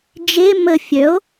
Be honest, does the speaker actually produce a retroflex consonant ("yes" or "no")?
no